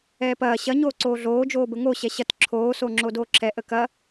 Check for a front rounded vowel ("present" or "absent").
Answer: absent